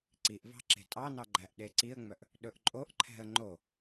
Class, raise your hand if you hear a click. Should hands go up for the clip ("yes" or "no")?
yes